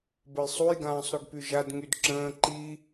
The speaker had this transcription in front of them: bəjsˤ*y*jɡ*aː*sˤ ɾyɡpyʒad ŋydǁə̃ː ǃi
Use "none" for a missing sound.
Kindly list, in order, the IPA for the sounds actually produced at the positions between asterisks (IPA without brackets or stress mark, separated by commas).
u, ãː